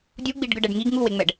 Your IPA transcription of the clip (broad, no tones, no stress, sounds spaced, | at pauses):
dʲ u ɡ͡b i ɖ ɡ ɯ ɖ ɛ ɖ ŋ i ɡ ŋ u w e ŋ͡m ɛ ɖ